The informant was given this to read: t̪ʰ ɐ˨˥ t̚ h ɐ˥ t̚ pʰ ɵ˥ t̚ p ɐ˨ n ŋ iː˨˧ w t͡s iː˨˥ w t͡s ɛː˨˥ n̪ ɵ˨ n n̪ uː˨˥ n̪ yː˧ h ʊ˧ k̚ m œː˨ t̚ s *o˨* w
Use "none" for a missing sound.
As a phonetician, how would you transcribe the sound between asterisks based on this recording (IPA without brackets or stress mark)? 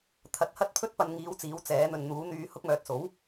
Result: o˨˥